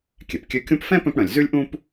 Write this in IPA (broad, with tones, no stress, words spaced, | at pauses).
kʲɛ˩pkʲø˦kʲũ˥p fɛ̃˥ pœ̃˥pɽœ̃˨lʲ zʉ˥lʲʔũ˥p